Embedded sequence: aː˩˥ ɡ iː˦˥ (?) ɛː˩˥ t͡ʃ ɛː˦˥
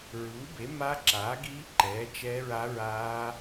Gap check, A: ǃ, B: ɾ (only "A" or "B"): A